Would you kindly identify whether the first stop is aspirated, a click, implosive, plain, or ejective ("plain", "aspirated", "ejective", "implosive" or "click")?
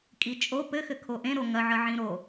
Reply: ejective